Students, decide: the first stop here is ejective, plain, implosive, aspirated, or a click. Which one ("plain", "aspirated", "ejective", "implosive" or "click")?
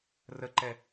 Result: click